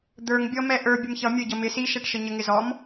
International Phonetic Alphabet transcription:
d̪ ə˞ ŋ bʲ ɔ m ɛ ʔ ə˞ bʲ ə m ç ʌ mʲ ə˞ ɟ ʌ m ɪ s i ʃ ɛ ʈ ʃ ə ɲ ə ŋ ɪ z ɔ m

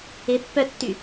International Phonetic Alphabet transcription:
ɪ pː œ tː y

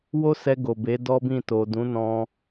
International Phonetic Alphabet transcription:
w o˦ s ɛ˧ ɡ o˨ b e˨˦ d ɔ˦ b ĩ˦˨ t o˨ d ũ˨˦ n ɔ̃˧

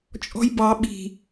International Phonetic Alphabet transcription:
t͡ʃʼ ɔ̤ j b ɑ ɓ i̤

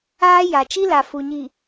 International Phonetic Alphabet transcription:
aː˦ j a˨ t͡ʃ i˦ l a˨ f u˨ ɲ i˨

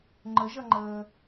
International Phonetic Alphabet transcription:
ŋ͡ǃ ə ʒ ʌ ŋ͡ǃ əː

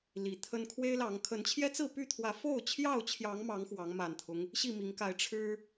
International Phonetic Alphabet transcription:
l i˨˦ t̪ʰ ə˦ n kʰ w e˦ ɪ̯ l ɑ˨˦ ŋ kʰ ə˨˦ n t͡ɕʰ j ɛ˦ t͡s ɹ̩˥˨ p y˥˨ t̪ʰ w ä˨˦ f o˥˨ ʊ̯ t͡ɕʰ j ɑ˥˨ ʊ̯ t͡ɕʰ j ɑ˨˦ ŋ m ɑ˨˦ ŋ x w ɑ˨˦ ŋ m a˨˩ n t̪ʰ ʊ˦ ŋ | ɕ i˥˨ m i˨˦ ŋ k a˨˦ ɪ̯ ʈ͡ʂʰ ɻ̩˦

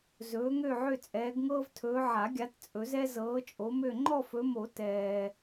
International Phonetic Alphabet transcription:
z ɵː˨˦ ŋ ø˦˨ ʕ ø˦˨ t͡sʼ ɛː˨˦ ɡ ŋ ɤː˦ v tʰ ɵː˨˦ ʕ a˨˩˦ ɡʲ a˨˦ t t͡sʼ ɵ˨˩˦ z ɛ˦ z ɤː˨˦ t͡ʃʼ o˨˦ m ø˦˨ ŋ͡ǃ ɔ˦˨ f ɵ˨˦ m o˨˩˦ t ɛː˨

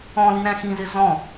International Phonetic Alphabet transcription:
ɔ̃ l i ɾ æ̃ x ĩ z ɪ z ɔ̃

